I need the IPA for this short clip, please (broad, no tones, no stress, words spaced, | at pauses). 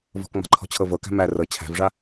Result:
vɔ̤kŋ͡ma̤ǃʰɔ̤t͡ɕʰɤ vɤkæ̤ mæ rɤ t͡ɕʰæ̤vʐa